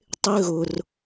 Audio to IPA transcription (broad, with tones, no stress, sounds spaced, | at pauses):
tˤ ɪ˦ ɣ ʊ˧ r